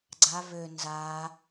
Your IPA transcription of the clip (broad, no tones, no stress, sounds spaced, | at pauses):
ɡ͡ǀ a β ø n z a